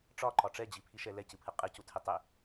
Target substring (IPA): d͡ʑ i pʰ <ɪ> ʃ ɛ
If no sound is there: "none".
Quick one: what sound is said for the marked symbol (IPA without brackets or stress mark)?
i